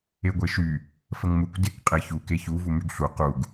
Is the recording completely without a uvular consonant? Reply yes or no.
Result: no